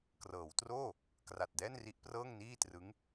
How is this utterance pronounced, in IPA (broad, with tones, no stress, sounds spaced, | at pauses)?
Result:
k r ɤː˩˦ w t r oː˥˩ | k r a˨˩ t̚ d ɛː˥˩ n r i˦˥ ʔ p r ɤː˥˩ ŋ n iː˥˩ t r ɯ˦˥ ŋ